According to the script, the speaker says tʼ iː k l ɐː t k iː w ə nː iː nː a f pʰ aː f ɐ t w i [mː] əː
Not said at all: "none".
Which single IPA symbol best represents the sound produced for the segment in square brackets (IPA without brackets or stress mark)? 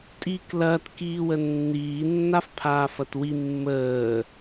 mː